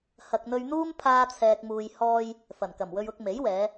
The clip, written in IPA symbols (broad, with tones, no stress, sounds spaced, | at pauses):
h ɐ˨ k̚ n̪ ɵ˧ ɥ n̪ uː˥ m pʰ aː˥ t͡sʰ ɛː˧ k̚ m uː˧ j h ɔː˧ j | f ɐ˨˩ n k ɐ˨˩ m w ɵ˧ ɥ ʊ˧ k̚ m e˨˥ j w ɛː˨˧